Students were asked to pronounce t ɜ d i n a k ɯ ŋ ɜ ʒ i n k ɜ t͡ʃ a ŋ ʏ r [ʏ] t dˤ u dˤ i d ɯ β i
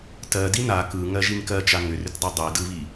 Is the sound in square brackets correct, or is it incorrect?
correct